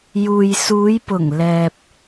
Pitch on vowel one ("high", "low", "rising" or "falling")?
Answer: low